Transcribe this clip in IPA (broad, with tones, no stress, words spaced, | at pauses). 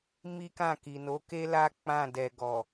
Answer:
mi˦kã˦˨ki˨no˨˦ ke˦la˦ k͡pã˦˨ dɛ˨ɡɔ˨